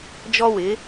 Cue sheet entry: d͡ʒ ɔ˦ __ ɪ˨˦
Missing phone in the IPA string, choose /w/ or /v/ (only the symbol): w